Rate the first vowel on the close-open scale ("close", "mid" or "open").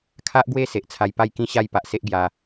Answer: open